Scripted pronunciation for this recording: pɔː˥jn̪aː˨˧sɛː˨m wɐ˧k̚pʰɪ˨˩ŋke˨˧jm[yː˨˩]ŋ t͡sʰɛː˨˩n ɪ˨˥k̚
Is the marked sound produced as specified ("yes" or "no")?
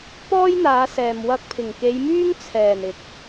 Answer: no